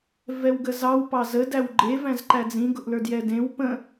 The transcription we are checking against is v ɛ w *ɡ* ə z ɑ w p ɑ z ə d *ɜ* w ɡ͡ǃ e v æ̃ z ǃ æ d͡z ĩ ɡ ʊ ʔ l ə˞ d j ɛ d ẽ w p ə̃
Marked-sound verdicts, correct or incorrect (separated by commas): correct, incorrect